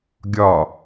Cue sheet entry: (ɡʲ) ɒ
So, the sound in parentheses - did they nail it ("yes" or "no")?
yes